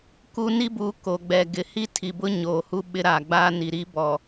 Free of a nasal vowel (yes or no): yes